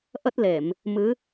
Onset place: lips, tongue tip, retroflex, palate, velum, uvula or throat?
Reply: throat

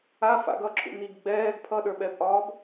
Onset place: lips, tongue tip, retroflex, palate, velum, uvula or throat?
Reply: lips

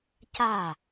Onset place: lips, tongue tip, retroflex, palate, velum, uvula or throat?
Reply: palate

